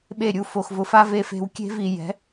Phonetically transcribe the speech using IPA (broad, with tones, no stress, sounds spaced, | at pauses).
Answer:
ɓ e˦˨ ɾʲ u˦˨ f o˨ x v ʊ˨ f a˦ v e˦ f e̤˦ w kʲ e̤˦ v i˨ j ɛ̤˨˦